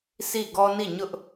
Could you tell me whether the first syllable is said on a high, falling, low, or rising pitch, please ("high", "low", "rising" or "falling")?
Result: falling